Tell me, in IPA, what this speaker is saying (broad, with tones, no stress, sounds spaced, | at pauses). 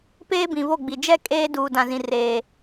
p eː˦ b ĩ˨ β o˦˨ ɡ͡b i˨ d͡ʒ ɛ˦ kʼ eː˦ d uː˨ d ã˨ z ĩ˨ r eː˨